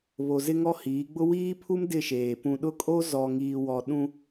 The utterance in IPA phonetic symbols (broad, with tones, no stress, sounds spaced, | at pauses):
β o˨ z ɪ˦ ŋ ɔ˦ h iː˨˦ ɡ͡b ʊ˦ w iː˦ pʰ u˦ m d ɪ˦˨ ʃ eː˨ p ũ˨ ɗ ʊ˦ kʼ o˦ z ɔ˨ ŋ iː˨ w ɔ˨ ɗ ũ˦